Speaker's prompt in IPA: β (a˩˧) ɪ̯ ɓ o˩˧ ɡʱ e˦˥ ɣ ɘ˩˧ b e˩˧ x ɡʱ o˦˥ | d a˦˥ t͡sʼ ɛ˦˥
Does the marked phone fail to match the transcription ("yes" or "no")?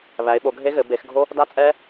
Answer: yes